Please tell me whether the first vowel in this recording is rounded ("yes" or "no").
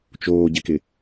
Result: yes